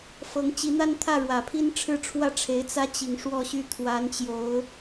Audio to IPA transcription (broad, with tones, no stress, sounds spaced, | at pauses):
f ɤ˧˥ ŋ t͡ɕ i˧˥ n̪ a˥ n t̪ʰ ä˥˩ ɻ w ä˨˩ pʰ i˥ n ʈ͡ʂʰ ɻ̩˥˧ ʈ͡ʂʰ w ä˥˩ ʈ͡ʂʰ e˧˥ ɪ̯ t͡s ä˥ t͡ɕ i˨˩ ŋ ʂ w ɔ˥˧ ɕ y˥˩ t̪ʰ w a˧˥ n t͡ɕ j o˧˥ ʊ̯